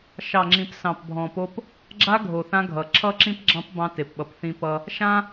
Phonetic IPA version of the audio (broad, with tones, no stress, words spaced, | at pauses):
ʃɑ˨ŋ͡ǁĩ˨p sɑ̃˨pbʱɔ̃˨po˦p | ɡ͡ǁa˦ ɡʱo˨θã˦ɡʱʌ˨ ǁʰʌ˦˨ǁĩ˦pɡ͡ǁɑ̃˦p bɑ̃˦te˨pɓʌ˨p θĩ˦pʌ˦ | ʃã˦